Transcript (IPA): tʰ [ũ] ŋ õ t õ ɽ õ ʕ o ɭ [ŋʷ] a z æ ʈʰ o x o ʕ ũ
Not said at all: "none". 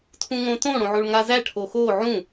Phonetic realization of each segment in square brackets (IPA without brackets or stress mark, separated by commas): ũ, ŋ